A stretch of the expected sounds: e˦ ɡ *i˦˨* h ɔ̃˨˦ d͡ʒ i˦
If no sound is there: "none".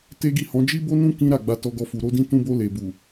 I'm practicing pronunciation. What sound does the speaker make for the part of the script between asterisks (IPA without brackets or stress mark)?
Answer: i˦˨